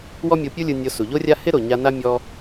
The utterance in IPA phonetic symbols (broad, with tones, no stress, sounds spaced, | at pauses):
w ɔ˦ mʲ o˧ pʲ u˦ lʲ ɯ˧ nʲ o˧ s u˨ ʎ o˦ rʲ a˦ h ɪ˦ ɾ o˨ ɲ a˧ n a˦ mʲ ɔ˧